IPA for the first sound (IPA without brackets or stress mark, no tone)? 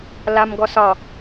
l